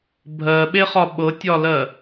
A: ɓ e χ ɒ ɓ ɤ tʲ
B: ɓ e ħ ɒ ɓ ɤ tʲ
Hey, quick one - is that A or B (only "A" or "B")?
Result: A